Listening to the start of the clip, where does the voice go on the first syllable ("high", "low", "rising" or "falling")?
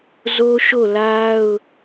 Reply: high